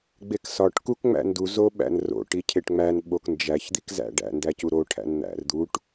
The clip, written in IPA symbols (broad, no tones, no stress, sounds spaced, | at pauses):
ɡ͡b e k s ɒ ʈ k u k ŋ͡m æ̰ n d u z o ɓ æ̰ n r o̰ ʈ i cʰ e ʈ ŋ͡m æ n ɓ o k n d͡ʒ æ ç d̪ i k z æ̰ ɖ æ̰ n d æ c u ɾ o ʈʰ æ̰ n n̪ æ̰ r d̪ u ʈ